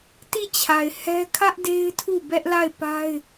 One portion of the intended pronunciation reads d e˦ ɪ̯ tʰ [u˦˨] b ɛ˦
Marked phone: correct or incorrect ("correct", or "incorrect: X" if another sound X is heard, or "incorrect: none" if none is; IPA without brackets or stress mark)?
correct